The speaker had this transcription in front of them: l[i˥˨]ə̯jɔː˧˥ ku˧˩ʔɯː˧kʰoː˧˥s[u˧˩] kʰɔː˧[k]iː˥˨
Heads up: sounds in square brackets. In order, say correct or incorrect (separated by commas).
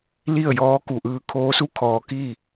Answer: correct, incorrect, correct